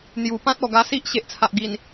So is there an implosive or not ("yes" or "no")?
no